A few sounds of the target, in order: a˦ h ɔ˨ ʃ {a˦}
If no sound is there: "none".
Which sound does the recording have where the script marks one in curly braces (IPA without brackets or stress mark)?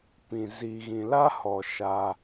a˦